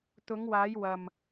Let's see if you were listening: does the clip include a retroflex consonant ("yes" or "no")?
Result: no